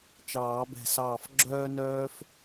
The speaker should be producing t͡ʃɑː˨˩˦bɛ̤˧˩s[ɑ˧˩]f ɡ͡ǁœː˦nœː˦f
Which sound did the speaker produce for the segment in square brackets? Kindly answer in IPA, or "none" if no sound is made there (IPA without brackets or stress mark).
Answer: ɑː˧˩